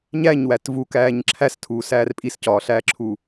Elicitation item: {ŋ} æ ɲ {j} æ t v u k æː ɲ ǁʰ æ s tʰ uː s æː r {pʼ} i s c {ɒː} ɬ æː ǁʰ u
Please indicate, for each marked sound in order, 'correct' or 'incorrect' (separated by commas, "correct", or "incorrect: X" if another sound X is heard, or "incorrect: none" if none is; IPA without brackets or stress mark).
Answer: incorrect: ɲ, incorrect: w, correct, correct